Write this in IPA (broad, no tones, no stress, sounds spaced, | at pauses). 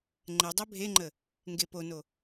ŋ͡ǃ ɛ dˤ ɛ bʱ e ŋ͡ǃ ə | ŋ ɡ e p o n o